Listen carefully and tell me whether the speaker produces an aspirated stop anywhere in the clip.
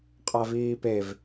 no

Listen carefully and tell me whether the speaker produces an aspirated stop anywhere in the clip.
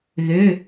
no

